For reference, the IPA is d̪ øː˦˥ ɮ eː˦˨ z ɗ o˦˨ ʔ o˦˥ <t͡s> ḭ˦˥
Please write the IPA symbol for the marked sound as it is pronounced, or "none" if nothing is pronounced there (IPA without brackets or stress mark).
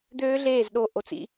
t͡s